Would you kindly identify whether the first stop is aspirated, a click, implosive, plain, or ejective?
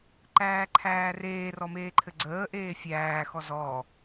click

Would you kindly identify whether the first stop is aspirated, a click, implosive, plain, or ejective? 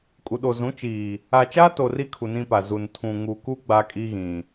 ejective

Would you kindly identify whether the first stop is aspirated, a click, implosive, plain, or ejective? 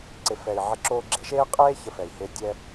click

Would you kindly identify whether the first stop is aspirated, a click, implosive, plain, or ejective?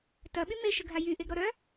plain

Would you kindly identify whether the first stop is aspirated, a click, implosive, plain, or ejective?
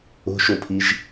aspirated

